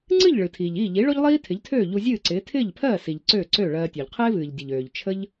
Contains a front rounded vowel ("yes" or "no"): yes